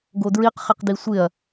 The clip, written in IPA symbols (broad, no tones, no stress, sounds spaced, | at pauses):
ɡ o d ɹ i q χ ɪ q d i sʷ ɪ ɐ̯